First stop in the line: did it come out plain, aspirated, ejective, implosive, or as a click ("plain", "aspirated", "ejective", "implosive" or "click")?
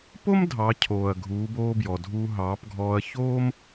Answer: plain